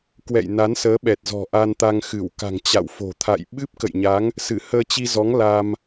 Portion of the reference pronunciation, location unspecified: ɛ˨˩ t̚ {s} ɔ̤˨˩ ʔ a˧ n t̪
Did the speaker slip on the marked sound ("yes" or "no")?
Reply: yes